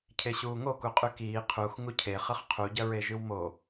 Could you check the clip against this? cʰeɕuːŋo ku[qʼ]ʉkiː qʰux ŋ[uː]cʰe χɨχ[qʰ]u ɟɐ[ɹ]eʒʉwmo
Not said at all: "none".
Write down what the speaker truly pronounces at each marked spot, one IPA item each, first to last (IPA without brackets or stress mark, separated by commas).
qʼ, u, qʰ, ɹ